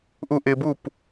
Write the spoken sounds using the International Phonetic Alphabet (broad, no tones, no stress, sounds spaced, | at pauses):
ʔ u ʔ ɪ b u p